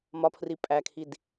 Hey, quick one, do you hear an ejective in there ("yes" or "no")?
yes